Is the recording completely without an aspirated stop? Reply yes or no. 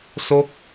yes